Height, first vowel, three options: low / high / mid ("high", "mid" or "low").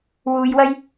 high